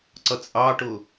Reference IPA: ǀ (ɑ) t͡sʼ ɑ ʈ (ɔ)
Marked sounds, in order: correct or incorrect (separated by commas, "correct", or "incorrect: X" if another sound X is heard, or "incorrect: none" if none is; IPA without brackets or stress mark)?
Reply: incorrect: ʌ, incorrect: ʊ